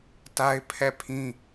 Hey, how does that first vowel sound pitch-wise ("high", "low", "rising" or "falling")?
high